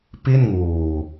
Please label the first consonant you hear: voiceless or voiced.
voiceless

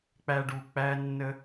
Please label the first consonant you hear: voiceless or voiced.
voiceless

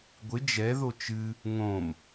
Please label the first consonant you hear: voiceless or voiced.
voiced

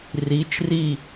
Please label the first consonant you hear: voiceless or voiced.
voiced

